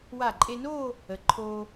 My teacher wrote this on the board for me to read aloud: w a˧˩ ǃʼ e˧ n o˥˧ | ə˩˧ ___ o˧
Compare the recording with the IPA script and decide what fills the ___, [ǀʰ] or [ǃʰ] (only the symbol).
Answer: ǃʰ